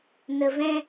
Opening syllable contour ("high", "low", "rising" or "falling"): low